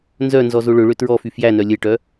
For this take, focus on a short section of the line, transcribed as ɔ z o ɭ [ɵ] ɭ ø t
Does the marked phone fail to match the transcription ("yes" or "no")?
no